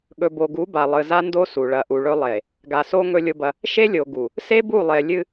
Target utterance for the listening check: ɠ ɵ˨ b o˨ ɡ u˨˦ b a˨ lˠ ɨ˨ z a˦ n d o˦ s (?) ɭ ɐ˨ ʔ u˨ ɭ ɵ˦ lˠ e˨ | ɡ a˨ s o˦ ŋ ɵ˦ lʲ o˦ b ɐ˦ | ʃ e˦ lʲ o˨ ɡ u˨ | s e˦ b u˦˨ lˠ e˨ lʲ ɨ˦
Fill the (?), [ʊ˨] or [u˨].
u˨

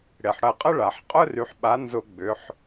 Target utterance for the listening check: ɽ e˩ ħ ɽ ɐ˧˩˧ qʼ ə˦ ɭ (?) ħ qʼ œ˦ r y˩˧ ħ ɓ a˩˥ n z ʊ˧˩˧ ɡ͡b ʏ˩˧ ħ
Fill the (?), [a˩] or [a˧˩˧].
a˩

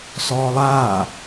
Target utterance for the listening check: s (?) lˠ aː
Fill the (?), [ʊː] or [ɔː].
ɔː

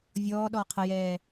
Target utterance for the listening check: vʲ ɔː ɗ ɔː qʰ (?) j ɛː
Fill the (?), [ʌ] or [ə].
ə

